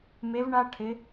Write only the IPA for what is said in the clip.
me˧˥vɳa˥ʈʰɪ˧˥

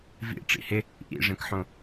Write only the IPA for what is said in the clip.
vḭ ʈ͡ʂḭhɪ | ʔḭʐẽkħõ

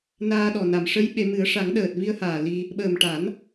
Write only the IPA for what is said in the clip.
naː˧ɗɔ˨˩ na˨˩˨mʂə˧˥jɓe˨˩˦mɨ˨˩˦ə̯ ʂa˨˩˦ŋɗəː˨˩t̚vi˧ə̯haː˨˩ li˧ | ɓəː˨˩m ʈa˨˩˦n

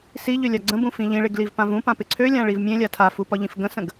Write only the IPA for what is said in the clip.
siʎølʲa ɡ͡ǀə̃bũfĩ ʎĩɭeɡlivpãv ũpãpɪ ǀʰølʲãɭiv mʲẽlʲa tʰafupɒʎĩf ɡə̃sə̃ɡ

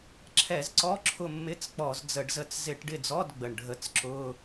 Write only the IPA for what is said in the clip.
ǁʰɛ˧˩˧zǀɔ˧˥˧ǁʰʊ˦˨mːɪ˧˥˧t͡s k͡pɔ˧˩˧zd͡zə˧˩˧ɖzə˦˨t͡s zɪ˧˩˧ʈɖɪ˦˨d͡zɔ˧˥˧d ɡ͡bə˨˩ɳɖʱə˧˩˧t͡sǁʊ˧˥˧

